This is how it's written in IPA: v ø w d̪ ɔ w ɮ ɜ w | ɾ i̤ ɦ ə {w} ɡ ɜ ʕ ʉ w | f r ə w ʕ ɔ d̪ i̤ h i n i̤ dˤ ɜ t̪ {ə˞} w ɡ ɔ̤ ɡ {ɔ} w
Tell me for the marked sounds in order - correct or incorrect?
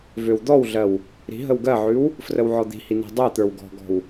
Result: correct, correct, incorrect: ɔ̤

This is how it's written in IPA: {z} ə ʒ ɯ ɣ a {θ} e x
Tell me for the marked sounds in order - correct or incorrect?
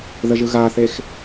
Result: incorrect: ð, correct

